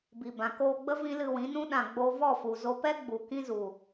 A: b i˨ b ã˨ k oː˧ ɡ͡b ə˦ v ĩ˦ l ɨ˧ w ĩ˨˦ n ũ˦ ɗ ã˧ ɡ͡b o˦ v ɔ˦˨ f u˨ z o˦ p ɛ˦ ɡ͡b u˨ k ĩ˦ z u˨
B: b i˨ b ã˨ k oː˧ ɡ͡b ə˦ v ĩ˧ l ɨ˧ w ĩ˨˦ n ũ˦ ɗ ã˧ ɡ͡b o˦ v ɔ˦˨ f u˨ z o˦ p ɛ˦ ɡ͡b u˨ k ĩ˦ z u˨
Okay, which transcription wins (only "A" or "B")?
A